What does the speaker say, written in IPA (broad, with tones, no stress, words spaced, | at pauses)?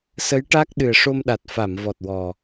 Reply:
sə˧˥jʈa˦˥k̚ ɗɨ˨˩ə̯ʂo˧mɗa˨˩t̚ fa˨˩˨mvɔ˨˩t̚wɔ˨˩